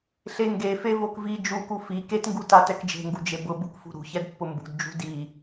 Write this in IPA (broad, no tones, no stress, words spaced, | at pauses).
ɬeŋɡefe vokvi d͡ʒuku fi ketŋɡu tatɛkd͡ʒe̤ŋɡu d͡ʒebʊbuk fṳɾṳçɛd pːʊmbṳdd͡ʒṳ di